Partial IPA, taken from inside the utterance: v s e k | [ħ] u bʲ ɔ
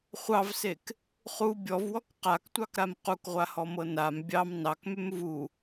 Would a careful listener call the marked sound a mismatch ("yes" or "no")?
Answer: yes